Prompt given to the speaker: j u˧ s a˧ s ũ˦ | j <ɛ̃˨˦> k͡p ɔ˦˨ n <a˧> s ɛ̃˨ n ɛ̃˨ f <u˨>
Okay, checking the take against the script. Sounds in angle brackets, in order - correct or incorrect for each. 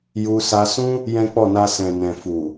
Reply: incorrect: ɛ̃˦, correct, correct

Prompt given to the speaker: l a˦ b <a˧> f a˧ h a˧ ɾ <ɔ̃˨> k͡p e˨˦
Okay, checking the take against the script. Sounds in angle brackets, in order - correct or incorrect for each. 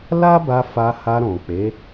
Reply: correct, correct

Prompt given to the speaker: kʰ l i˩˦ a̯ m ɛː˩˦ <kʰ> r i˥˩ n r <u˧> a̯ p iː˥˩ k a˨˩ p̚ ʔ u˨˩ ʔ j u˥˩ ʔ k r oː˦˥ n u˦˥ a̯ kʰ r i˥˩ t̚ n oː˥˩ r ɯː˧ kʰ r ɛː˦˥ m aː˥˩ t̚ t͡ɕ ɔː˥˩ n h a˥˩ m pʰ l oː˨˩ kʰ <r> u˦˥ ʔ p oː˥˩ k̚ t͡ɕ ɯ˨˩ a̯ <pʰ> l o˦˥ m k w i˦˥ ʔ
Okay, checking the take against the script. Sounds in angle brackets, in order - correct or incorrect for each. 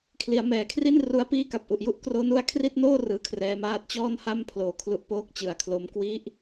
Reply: correct, incorrect: u˦˥, incorrect: l, incorrect: kʰ

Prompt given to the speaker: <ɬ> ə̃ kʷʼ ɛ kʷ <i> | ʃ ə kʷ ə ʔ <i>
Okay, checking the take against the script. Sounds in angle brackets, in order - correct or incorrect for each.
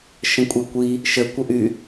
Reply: incorrect: ʃ, correct, incorrect: y

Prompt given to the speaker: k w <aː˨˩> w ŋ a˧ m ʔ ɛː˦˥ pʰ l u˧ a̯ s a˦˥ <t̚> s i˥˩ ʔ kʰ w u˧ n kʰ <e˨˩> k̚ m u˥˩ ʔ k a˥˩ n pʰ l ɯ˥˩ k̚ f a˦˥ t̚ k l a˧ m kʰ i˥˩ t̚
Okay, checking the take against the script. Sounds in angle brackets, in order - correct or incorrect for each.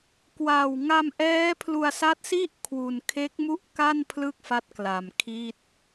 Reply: correct, correct, incorrect: e˦˥

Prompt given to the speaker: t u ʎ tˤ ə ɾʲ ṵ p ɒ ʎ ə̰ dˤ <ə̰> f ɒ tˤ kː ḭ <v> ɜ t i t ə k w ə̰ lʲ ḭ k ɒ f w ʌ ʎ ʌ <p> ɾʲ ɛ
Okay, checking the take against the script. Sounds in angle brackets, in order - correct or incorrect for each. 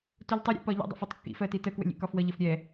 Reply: correct, incorrect: f, incorrect: f

